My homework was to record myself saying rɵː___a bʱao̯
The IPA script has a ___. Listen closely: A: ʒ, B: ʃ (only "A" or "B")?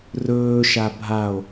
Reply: B